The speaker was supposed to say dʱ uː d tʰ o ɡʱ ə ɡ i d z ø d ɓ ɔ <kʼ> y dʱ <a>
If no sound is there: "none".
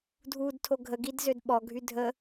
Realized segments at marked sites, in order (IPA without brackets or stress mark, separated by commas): ɡʱ, ə